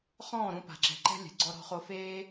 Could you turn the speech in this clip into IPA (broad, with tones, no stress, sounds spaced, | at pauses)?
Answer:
χ ɔ̃ː˦˨ ɾ ũ˧ p a̤˨ ǁ ɛ̤˨ ǃ ɛ̤˦ lʲ ɛ̤˨ ɡ͡ǀ ɔ˧ ɾ ɔ̤˧ χ o˧ f eː˦